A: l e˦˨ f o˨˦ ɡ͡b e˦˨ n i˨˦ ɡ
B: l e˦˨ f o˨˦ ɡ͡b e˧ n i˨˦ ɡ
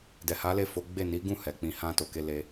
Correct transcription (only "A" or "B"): A